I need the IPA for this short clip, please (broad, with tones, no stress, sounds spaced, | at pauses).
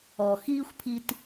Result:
ɔ˩ x iː˥ xʷ pʰ i˧ t